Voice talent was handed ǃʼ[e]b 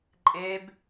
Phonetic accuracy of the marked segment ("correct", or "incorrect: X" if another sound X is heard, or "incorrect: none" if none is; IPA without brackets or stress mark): correct